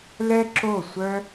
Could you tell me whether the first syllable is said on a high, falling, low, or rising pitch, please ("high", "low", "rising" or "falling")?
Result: high